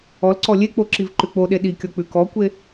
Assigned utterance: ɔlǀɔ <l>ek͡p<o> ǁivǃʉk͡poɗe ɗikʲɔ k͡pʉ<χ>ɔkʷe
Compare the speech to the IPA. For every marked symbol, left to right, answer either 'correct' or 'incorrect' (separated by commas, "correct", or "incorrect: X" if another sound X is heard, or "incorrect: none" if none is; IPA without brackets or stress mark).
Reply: incorrect: lʲ, correct, incorrect: k